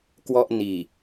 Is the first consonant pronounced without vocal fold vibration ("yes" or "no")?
yes